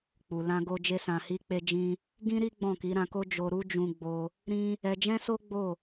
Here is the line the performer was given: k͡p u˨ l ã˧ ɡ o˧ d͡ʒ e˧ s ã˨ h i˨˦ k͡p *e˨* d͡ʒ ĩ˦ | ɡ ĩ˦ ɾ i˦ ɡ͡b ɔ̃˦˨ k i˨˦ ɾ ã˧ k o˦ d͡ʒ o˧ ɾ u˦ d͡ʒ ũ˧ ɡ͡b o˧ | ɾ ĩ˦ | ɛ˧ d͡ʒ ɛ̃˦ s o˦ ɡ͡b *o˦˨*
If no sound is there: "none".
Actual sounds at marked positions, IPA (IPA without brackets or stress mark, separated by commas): e˧, o˦˨